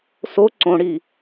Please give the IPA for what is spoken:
s o ǀ õ ɽ i

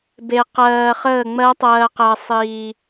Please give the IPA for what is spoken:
b e˧ q ɜː˧ χ əː˥˨ ŋ͡m ɜ˦˥ tˤ ɜː˧ q ɜ˧ sˤ iː˧

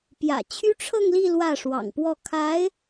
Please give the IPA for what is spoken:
p j ä̰˨˩ t͡ɕʰ y˥ ʈ͡ʂʰ ɤ˥˧ ŋ l i˥˧ l w ä˥˩ ʂ w ɑ̰˨˩ ŋ p w ɔ˥˩ kʰ a˧˥ ɪ̯

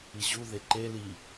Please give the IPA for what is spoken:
i ʑ u ð e ǃ e l i

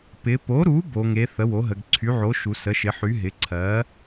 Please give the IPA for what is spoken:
p ɪ˩˧ p o˩˥ ɾ u˩˥ b o˩˧ ŋ e˩˥ θ ə˩˥ w o˩˥ ɦ ə˩˧ ɡ ǀʰ y˩˥ ʕ o˩˥ ʃ u˩˧ s ə˩˥ ʃ ɪ˩˥ ħ y˩˥ ɦ ɪ˩˥ ǀʰ ɜ˩˥

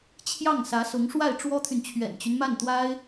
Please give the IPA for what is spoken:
t͡ɕʰ j ɑ˥˩ ŋ s ä˧˥ s ʊ˧˥ ŋ ʂ w a˥˩ ɪ̯ ʈ͡ʂ w ɔ˥ t̪ʰ y˨ n t͡ɕʰ ɥ ɛ̰˨˩ n t͡ɕ y˦ n m a˥˩ n t̪ w a˥ ɪ̯

